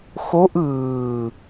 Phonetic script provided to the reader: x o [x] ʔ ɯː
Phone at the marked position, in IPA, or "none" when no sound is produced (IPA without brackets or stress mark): none